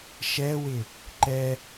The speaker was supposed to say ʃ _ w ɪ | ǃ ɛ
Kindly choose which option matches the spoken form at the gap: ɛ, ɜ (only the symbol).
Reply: ɛ